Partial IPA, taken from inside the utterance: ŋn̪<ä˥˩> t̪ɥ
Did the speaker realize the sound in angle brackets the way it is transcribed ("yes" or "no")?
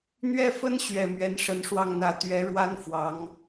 no